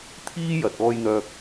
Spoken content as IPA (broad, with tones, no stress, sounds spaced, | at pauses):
t̪ʰ iː˥ j ɐ˨ t̚ ɔː˧ j n̪ œː˧ k̚